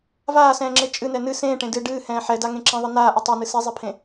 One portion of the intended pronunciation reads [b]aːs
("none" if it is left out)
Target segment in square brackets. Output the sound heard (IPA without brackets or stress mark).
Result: v